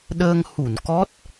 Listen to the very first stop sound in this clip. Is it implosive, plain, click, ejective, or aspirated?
implosive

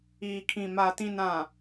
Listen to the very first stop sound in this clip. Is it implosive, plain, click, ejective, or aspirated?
aspirated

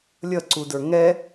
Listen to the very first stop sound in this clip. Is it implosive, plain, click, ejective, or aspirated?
click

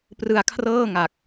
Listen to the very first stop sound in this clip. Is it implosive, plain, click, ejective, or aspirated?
plain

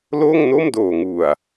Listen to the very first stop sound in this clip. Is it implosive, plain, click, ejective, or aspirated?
plain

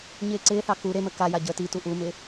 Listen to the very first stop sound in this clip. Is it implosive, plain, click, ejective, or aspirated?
click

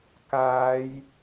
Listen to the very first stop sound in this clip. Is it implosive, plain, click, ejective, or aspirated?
plain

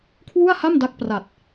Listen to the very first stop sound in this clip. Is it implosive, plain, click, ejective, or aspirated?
aspirated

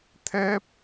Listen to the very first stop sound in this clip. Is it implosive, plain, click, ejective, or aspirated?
aspirated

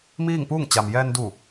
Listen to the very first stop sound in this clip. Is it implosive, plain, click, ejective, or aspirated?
plain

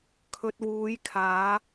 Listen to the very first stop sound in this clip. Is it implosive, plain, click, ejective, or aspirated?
aspirated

